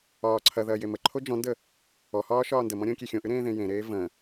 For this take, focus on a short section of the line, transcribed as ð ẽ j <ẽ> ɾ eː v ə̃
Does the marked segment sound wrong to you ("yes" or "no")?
no